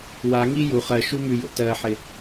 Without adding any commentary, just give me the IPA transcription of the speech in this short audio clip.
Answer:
w a ŋ i j u χ ɜ ʃ u m ʉ j o̰ t ɜ ħ ɪ

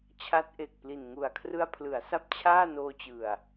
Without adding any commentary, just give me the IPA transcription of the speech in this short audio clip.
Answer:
t͡ɕʰ a˦˥ t̚ ʔ e˨˩ k̚ p l i˨˩ n ŋ u˨˩ a̯ kʰ r ɯ˧ a̯ pʰ l ɯ˩˦ a̯ s a˦˥ p̚ t͡ɕʰ aː˥˩ n oː˧ t͡ɕ ɯ˨˩ a̯

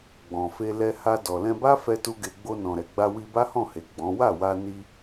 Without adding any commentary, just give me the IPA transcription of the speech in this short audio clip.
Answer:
ɡ͡b ɔ̃˨ f e˧ l ɛ˧ h a˧ d ɔ˨ l ɛ̃˧ b a˦ f ɛ˦ t u˦ ɡ e˧ ɡ͡b o˧ n ɔ̃˨ ɾ ɛ˨ ɡ͡b a˧ w i˧ b a˦ h ɔ̃˦˨ h e˨ ɡ͡b ɔ̃˨˦ w a˦˨ w a˧ n i˧

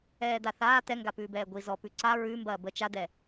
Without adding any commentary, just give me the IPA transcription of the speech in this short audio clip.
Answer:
ɛː d̪ a θ aː t̪ ɛ ŋ ɡ a p ʉː b ɛː ɡʷ i z ɔ p ʉ ǀ a ɹ ʉ m b ɐː b ə t͡ʃ a d̪ ɛ

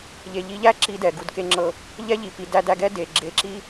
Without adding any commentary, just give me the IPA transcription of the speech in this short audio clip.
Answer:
ʎ e˩ ʎ i˧ ʎ æ˥ ǁ i˧ d ɛ˩ ɡ u˩ d k e˧ ŋ͡ǁ ɤ˧ | ʎ ɛ˥ ʎ i˩ p i˩ d æ˧ d æ˧ ɡ ɛ˥ d e˩ ɡ͡ǁ e˧ ǁ i˥

